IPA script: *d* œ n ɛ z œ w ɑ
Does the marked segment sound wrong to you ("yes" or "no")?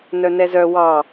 yes